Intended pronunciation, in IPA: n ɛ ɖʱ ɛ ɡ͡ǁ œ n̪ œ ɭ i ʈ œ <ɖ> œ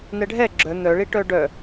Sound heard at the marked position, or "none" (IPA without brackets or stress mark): ɖ